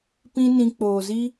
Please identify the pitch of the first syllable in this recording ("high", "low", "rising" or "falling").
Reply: high